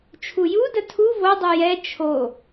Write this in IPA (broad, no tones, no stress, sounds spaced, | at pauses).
t͡ʃʰ u j u d ə tʰ u v o dˤ u j ɛ t͡ʃʰ o